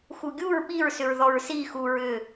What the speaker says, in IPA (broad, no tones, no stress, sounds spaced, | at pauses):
x u ɡʲ u ɹ ɓ i ɹ s ʏ ɹ ð ɔ ɹ s i x u ɹ ʏ